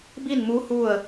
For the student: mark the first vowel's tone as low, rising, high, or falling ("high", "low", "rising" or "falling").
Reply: falling